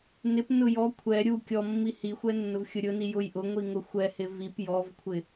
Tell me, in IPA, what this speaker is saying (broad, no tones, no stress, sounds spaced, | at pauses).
n ɪ p n ʊ j ɔ kʷʰ ɛ ɾʲ u kʲ ɔ mː i h i xʷ ɛ nː ʊ v xʲ ʊ ɾʲ ʊ n i j ʊ j ʔ ʊ ŋʷ i ŋ ʊ xʷ ɛ h ɪ v i p j ɔ v kʷʰ ɪ